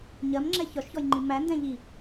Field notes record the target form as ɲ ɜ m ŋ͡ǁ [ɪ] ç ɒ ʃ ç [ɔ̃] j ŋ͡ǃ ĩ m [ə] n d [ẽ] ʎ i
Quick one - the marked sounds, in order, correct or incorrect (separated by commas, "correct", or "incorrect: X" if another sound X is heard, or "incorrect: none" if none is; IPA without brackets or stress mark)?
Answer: incorrect: ɛ, incorrect: ɔ, incorrect: æ, incorrect: ɛ̃